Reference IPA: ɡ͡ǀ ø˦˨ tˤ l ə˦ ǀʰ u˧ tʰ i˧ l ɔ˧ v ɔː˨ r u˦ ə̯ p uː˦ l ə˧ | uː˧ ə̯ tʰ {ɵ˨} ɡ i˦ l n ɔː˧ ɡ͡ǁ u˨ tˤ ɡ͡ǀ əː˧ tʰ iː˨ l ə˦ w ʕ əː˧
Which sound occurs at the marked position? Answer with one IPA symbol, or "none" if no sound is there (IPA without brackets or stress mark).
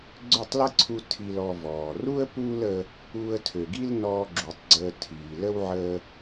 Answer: ø˨